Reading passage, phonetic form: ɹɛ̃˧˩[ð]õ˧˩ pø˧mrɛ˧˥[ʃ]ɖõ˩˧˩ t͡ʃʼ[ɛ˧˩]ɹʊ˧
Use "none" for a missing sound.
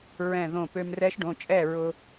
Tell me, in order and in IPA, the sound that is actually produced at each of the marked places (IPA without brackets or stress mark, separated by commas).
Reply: ð, ʃ, ɛ˥˩